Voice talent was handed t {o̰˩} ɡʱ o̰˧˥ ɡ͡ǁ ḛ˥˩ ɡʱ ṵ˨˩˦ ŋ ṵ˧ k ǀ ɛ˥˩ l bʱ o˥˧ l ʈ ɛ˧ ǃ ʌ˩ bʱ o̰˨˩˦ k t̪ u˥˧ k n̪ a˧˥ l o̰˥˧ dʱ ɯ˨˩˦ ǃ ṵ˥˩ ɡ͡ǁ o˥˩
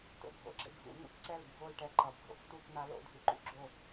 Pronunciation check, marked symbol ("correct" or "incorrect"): incorrect